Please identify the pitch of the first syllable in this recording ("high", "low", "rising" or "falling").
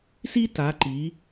high